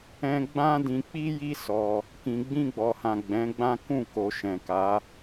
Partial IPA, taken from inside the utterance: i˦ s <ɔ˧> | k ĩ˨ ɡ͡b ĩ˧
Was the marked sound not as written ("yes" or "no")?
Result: no